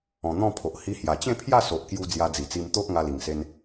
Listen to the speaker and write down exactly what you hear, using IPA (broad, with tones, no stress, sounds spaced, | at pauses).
ɔ̃˨˩ n̪ ɔ̃˥˧ pʰ o˨ ʔ h i˧ h j a˨˩ t͡ɕ ẽ˥˧ pʰ j a˥˧ s o˨ ʔ k j u˧ d͡z j a˧ d͡z i˨˩ t͡s i˧ m t̪ o˦ ʔ ŋ a˧ l i˨˩ ŋ s e˧ n